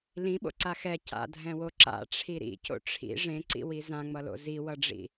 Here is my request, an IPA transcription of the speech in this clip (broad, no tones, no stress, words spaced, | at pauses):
lĩɓo̰ǀa xɛ ca̰dʱɛ̃wo ǁa̰ʈ͡ʂʰi ɾḭco̰ ʈ͡ʂʰḭ ʐẽǀḭwi zãŋ͡mʌlo̰ ziwʌɖ͡ʐḭ